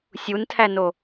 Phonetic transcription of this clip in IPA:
sʲ u n tʰ æ n o

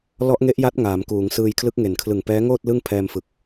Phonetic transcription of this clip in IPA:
l ɔ˦˥ ʔ ŋ e˦˥ ʔ j a˦˥ t̚ ŋ aː˩˦ m k uː˩˦ ŋ s ɯː˧ j kʰ l ɯ˦˥ k̚ ŋ e˨˩ n kʰ l ɯ˨˩ ŋ p ɛː˦˥ ŋ oː˥˩ t̚ l ɯ˥˩ ŋ pʰ ɛː˧ m f ɯ˨˩ k̚

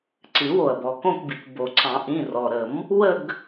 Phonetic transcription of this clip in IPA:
ǀ ɨ˨˩˦ w o˩ ɐ̯ b ɔ˩ k õ˦˨ k b i˩ k b o˩ ǀ ɑ̃˨˩˦ ʔ ĩ˩˧˩ r ɔ˩ ɾ ə˨˩˦ m | w ə˦˨ ɡ

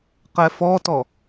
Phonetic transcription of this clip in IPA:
q ɛ f ɔ t ɔ

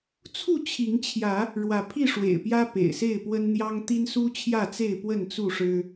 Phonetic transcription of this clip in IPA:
t͡sʰ u˥˨ t͡ɕʰ i˨˦ ŋ t͡ɕʰ j ä˨˦ | ɻ w ä˨˦ pʰ i˥˨ ʂ w ḛ˨˩ ɪ̯ p j ä˦ p ḛ˨˩ ɪ̯ s e˥˨ ɪ̯ p w ə˦ n n̪ j ɑ˦ ŋ t̪ i˦ n s u˦ t͡ɕʰ j ä˥˨ t͡s e˥˨ ɪ̯ p w ə˥˨ n t͡s u˥˨ ʂ ɻ̩˦

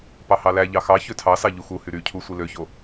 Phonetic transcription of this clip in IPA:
p ɑ h ɑ l æ ʎ ɑ x ɑ ç ø tʰ ɑ s ɑ ʎ u x u h y ɾ y cʰ u sʷ i l ø ç o

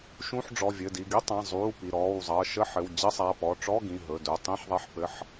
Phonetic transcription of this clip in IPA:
ʃ ũ˧˥˧ ħ ɖ͡ʐ ɔ˩˧˩ vʲ ɘ˩˧˩ d i˩˧˩ ɡ i˧˥˧ tˤ ã˩˧˩ zˤ uː˩˧˩ p i˩˧˩ ɾ ɔː˩˧˩ w zˤ ʌː˩˧˩ ʃ ə˧˥˧ ħ ɘ˩˧˩ w d͡ʑ ɘ˧˥˧ sˤ a˩˧˩ p ɔ˩˧˩ ʈ͡ʂ ɔ˧˥˧ ɡ ĩ˩˧˩ ɦ ɵ˩˧˩ d ɵ˩˧˩ tˤ ĩ˧˥˧ ħ ðˤ ɛ˧˥˧ ħ p ɘ˧˥˧ ħ

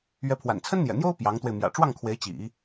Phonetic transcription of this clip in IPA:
ɥ ɛ˧˥ pʰ w a̰˨˩ n t͡sʰ ə˥ n n̪ j ɛ̰˨˩ n̪ j o˥ ʊ̯ p j ɑ˧˥ ŋ t̪ w e˧ ɪ̯ m j ä̰˨˩ ʈ͡ʂ w ɑ˥˩ ŋ kʰ w e˧˥ ɪ̯ t͡ɕ ḭ˨˩˦

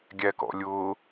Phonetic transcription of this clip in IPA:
ɡʲ æ k ɔ̰ lʲ ʊ

